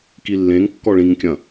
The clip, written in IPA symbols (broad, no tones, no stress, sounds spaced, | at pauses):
k i lː ẽ ŋ kː ɔ ɭ ĩ ŋ kʲ ɐ̃